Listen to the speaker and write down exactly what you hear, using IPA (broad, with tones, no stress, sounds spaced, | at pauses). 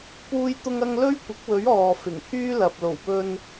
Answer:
p uː˥ j t̪ ʊ˥ ŋ ɐ˥ ŋ l ɵ˥ ɥ kʷ ɪ˨˥ k̚ w ɵ˨˥ ɥ ɔː˨ f ɪ˨˩ ŋ pʰ yː˥ l ɐ˨ p̚ l o˨˩ w p ɵ˧ n